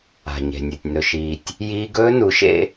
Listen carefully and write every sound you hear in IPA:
a̤˨ɲe̤˨nʲɵ˨tʲ nɵ˨ʃiː˨tʲ | jiː˦ɡ ɵː˦nu˨˦ʃḛ˦

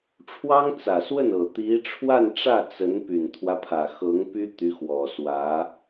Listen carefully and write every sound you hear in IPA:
ʈ͡ʂʰwɑ˥ŋt͡sä˨˩swə˥˩nɤ˨˩ t̪i˧˥ʈ͡ʂʰwa˥˧nʈ͡ʂä˥˩ t͡sə˧˥n py˨˩nt̪ʰwä˦pʰä˨˩xɤ˧˥ŋ py˥t̪y˧˥xwɔ˨˩swä˧˥

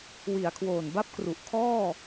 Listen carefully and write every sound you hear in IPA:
wi˩˦a̯kʰwoː˨˩nba˥˩p̚kru˨˩ʔ kʰɔː˥˩

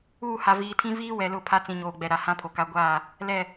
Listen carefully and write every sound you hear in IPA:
uː˦˨ha˨viː˨tʰĩ˦ viː˦wɛ˨lʊ˦˨ pʰa˦ t͡sĩ˨ɲoː˨ɡ͡bɛ˨ ɾa˨ hã˦pʰo˨ka˦ ɡʷaː˦˨ | lɛ˦˨

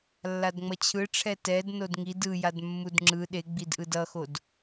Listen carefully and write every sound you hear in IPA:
lːadŋ͡mʌt͡ɕʰɯʈ͡ʂʰɛ tɛd nodŋid ɯjad mːudŋ͡ǁɯ ɗeɡ͡bidʔɯd ʌxod

